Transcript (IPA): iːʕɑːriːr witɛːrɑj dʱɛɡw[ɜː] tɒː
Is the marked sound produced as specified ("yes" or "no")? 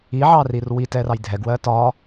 yes